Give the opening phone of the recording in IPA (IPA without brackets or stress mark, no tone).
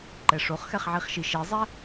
ǃ